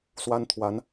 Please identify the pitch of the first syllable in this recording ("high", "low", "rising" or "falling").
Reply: high